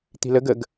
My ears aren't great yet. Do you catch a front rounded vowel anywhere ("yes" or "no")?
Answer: no